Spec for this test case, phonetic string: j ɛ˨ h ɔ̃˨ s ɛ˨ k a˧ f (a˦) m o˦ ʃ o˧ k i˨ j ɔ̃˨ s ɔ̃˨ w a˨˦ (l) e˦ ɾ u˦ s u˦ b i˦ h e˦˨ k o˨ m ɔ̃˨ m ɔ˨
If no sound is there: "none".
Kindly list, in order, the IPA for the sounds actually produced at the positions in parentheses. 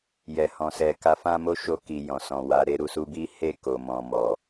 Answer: ã˦, ɾ

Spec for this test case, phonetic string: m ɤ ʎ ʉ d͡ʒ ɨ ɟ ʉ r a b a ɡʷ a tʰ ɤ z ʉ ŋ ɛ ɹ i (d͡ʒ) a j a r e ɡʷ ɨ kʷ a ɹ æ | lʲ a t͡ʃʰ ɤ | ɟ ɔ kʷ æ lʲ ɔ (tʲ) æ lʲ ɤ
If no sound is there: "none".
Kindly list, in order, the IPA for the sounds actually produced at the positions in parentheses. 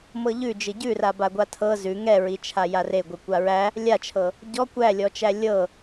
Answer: t͡ʃʰ, t͡ʃ

